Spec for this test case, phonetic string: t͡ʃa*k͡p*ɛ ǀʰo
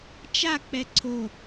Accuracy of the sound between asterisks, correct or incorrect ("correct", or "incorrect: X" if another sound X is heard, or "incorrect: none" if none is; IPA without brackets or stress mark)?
correct